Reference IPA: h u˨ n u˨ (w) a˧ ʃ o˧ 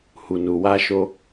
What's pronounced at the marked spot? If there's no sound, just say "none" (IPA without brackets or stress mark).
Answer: w